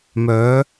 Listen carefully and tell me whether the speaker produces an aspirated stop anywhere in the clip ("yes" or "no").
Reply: no